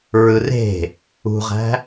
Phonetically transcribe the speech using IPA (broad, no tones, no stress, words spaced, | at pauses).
ɹɯre̤ | ṳʁæ̤